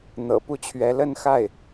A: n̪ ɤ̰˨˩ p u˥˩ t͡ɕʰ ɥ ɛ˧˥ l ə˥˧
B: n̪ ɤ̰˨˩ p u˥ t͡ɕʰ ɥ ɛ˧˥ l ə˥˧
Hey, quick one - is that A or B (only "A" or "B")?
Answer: A